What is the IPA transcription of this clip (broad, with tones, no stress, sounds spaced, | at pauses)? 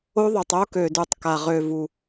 o˦ ðˤ ʉ˧ tˤ o˦ k ø˧ d u˧ tˤ k a˧ ʁ ø˧ v u˧